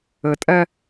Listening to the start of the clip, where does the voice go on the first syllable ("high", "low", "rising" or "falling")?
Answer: low